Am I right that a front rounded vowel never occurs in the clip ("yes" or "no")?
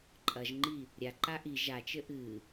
yes